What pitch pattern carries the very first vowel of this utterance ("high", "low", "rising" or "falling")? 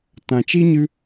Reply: low